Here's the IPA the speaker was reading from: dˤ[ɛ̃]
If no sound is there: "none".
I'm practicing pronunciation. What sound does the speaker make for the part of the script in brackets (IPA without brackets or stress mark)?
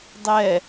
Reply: ɛ